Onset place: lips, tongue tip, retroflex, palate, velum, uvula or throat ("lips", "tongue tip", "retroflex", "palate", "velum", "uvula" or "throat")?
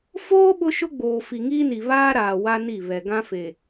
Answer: lips